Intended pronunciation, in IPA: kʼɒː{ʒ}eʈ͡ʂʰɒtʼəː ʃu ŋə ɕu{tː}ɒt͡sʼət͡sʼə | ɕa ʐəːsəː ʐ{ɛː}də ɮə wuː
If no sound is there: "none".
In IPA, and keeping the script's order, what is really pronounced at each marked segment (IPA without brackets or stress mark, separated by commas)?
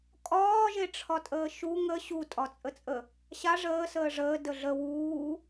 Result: ʒ, tʼ, əː